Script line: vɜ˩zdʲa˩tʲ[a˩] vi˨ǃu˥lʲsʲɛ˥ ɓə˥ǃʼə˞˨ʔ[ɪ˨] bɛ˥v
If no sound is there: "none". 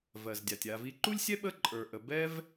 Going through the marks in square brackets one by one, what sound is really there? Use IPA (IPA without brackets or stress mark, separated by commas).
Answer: a˨, ə˨